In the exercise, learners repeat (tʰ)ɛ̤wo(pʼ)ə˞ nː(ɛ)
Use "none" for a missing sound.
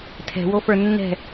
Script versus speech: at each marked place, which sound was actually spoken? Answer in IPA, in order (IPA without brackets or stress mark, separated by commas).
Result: tʰ, f, ɛ̤